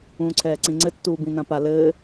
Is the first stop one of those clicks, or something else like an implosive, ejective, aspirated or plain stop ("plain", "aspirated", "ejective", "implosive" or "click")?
click